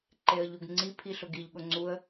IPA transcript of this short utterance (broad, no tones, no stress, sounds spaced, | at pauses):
ǃ e ə̯ ʎ u ɡ ŋ͡ǀ i pʰ i ɬ ʊ ɡ i ʎ ɠ ʊ ŋ͡ǀ u ə̯